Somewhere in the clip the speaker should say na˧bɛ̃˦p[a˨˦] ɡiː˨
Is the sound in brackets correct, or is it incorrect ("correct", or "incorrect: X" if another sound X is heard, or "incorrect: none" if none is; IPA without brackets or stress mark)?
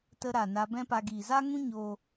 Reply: incorrect: a˧